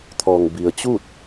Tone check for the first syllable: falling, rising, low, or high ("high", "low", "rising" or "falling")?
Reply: low